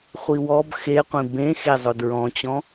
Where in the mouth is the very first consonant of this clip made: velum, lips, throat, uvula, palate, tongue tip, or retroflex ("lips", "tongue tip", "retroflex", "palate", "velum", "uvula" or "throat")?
uvula